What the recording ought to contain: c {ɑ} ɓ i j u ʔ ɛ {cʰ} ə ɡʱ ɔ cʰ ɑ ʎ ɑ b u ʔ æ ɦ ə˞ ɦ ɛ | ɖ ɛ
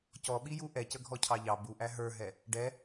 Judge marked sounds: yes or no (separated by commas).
no, no